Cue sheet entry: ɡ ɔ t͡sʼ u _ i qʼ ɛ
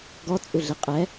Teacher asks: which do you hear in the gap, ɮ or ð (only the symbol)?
ɮ